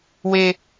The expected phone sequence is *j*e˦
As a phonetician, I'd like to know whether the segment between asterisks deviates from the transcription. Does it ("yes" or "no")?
yes